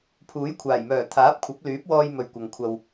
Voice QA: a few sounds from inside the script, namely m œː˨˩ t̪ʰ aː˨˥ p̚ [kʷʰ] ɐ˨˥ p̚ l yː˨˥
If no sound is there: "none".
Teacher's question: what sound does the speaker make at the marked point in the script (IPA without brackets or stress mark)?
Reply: kʷʰ